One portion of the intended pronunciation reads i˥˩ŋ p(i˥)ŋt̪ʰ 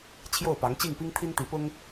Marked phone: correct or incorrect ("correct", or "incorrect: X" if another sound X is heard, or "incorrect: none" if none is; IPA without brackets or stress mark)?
correct